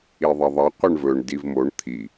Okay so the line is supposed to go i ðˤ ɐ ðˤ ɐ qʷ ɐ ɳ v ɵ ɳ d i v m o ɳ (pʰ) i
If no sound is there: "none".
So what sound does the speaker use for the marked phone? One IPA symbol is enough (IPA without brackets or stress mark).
t̪ʰ